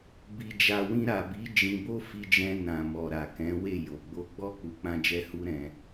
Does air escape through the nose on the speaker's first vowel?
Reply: no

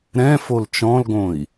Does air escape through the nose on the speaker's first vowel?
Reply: yes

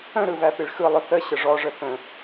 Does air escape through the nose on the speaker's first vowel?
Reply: yes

